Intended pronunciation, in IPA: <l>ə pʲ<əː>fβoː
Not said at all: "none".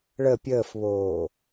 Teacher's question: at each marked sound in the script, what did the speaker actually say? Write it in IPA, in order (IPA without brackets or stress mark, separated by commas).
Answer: ɭ, əː